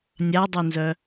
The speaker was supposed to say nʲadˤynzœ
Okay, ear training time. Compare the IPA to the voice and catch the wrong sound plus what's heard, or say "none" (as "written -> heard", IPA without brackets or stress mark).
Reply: none